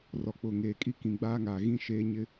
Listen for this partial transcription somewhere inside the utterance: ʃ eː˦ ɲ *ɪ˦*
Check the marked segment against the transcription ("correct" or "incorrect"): correct